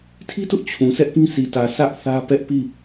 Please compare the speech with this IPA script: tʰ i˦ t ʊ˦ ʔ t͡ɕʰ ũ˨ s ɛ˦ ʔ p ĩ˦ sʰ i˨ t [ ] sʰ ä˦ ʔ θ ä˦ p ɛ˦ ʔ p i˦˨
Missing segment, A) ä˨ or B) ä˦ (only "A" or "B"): A